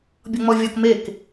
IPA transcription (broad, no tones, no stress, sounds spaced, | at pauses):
bʲ ɔ ŋ͡m ɔ vʲ ɔ k m e k